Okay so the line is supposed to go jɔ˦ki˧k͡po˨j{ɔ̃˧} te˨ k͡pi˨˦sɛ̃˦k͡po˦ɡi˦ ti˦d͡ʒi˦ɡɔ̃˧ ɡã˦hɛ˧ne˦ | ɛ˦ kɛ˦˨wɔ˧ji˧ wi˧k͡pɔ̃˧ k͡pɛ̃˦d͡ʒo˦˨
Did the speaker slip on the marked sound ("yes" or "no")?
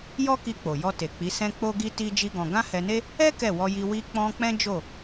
yes